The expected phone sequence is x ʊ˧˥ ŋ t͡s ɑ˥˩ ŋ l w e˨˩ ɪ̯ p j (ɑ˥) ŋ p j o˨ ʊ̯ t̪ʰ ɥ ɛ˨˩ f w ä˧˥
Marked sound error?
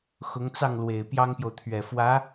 no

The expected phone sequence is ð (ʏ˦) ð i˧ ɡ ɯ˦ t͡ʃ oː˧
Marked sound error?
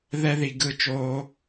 yes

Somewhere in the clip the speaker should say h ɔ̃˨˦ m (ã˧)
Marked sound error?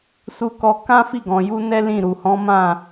yes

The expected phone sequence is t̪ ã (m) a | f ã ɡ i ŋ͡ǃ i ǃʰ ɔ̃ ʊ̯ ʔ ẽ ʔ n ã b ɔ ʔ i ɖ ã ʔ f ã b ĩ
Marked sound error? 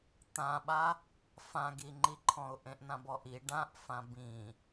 yes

